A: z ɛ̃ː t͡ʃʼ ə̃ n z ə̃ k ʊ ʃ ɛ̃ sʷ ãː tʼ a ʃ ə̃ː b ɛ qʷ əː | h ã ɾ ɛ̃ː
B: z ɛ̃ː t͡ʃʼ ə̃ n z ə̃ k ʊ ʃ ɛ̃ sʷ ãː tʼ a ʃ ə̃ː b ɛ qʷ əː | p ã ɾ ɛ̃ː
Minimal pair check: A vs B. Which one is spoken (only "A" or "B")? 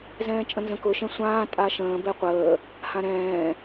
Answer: A